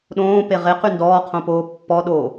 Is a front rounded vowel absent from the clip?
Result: no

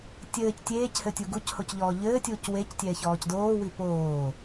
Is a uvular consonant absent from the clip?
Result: yes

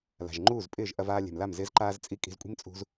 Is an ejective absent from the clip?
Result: no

